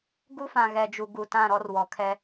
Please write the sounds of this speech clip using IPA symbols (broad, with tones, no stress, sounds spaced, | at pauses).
ɡ u˦ f ã˨ ɣ ɛ˨ d͡ʒ u˨ ɡ u˨ t ã˦˨ ɾ ɔ˦ r w ɔ˨ kʰ ɛ˦